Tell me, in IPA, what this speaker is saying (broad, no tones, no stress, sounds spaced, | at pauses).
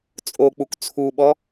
t͡sʼ o k͡p u k t͡sʰ u ɓ ɔ